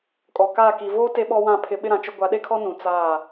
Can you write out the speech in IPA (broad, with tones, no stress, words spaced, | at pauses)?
kʼɔ˨kaː˦˨ ki˨voː˦ te˦ɓɔ˦wã˦˨ pʰɪ˦ ɓɪ˦ɾã˨t͡ʃʊ˦ ɡʷa˨˦ɗe˦kʰɔ˦ nũ˨ t͡saː˦˨